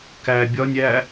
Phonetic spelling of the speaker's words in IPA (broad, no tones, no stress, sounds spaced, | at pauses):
k æ bʲ ɒ nʲ æ